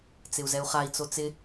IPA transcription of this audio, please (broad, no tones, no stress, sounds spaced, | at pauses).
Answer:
t͡s ɪ u̯ z ɛ u̯ χ a i̯ t͡s o t͡s ɪ